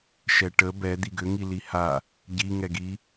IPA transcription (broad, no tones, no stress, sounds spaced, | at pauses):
ʃ ɛ ʈ ə b ɛ d̪ i ɡ ʏ ŋ i l i h a | ɟ i ŋ ɛ ɡ i